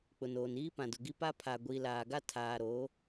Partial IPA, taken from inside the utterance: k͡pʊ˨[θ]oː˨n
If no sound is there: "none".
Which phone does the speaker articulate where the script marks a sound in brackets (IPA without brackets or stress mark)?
n